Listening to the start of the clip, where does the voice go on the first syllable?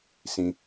low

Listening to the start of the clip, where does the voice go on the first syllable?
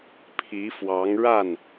rising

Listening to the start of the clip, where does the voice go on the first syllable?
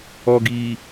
low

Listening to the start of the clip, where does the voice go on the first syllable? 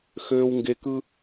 low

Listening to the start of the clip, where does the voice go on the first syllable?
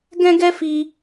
high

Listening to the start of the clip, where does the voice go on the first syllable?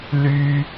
high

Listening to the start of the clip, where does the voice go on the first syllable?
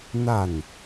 falling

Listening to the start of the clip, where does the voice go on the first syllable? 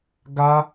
high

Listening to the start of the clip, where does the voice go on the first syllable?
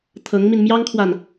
rising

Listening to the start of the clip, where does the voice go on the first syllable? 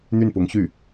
falling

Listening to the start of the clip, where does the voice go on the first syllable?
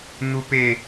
high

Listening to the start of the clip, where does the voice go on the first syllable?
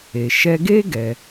low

